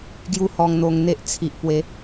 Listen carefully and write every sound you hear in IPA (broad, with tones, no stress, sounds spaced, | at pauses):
ɡ j u˦ h ɔ˧ ŋ n̪ o˧ ŋ n̪ e˦ ʔ t͡sʰ i˨ ʔ p w e˨˦